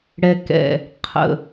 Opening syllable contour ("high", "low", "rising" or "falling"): low